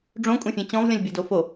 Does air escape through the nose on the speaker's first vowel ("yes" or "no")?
yes